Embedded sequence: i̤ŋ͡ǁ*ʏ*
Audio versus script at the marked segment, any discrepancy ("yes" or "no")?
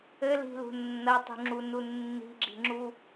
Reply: yes